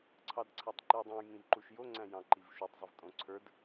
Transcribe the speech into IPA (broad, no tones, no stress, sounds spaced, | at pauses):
ǀʰ ɑ d ǀʰ æ tˤ ǃ ɨ j dˤ õ j ŋ ĩ v ǃ u ʃ j o ŋ͡ǀ æ̃ j ɑ̃ ǃ i v ʃ u tˤ zˤ u v tʼ õ ǀʰ ə˞ d